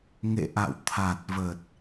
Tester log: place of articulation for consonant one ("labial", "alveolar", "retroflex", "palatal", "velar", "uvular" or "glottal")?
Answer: velar